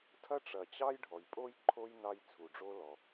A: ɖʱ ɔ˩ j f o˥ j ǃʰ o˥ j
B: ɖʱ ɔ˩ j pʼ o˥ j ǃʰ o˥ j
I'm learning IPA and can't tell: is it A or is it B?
B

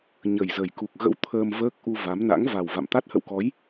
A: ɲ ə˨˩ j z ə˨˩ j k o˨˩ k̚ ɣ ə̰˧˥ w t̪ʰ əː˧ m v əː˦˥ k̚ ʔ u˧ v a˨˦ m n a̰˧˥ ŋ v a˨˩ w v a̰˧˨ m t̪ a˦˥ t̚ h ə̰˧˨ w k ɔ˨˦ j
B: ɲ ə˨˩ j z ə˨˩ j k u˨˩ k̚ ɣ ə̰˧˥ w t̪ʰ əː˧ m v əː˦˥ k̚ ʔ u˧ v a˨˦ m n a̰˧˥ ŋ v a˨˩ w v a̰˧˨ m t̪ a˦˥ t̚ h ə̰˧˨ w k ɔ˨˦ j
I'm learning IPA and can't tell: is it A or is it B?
B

